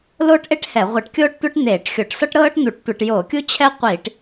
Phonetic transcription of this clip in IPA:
loː˦ʈʔe˦ʈ hɛ˧˩˧ ʁʷɛ˧˩˧ʈkʲoː˦ʈtʷe˦ʈ n̪eː˧˩˧ʈxʲo˧˩˧ʈ sɔ˦ʈɾɤː˦ʈ n̪u˧˩˧ʈtʷe˧˩˧ʈ jo˧˩˧kʲu˦t͡ɕʰɛ˦qʷi˧˩˧ʈ

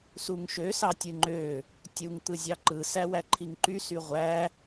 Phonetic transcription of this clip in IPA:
suŋʃø sɑtʲɯŋ͡ǃø | tʲuŋ t̪ɯzʲɑǃɯ sæwæǃʰiŋǃy syʁʷæ

